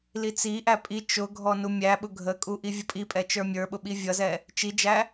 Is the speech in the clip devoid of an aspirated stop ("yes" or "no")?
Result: yes